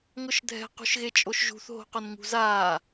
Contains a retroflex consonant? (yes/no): no